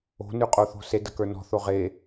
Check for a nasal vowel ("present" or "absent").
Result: absent